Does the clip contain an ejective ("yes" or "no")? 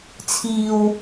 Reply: no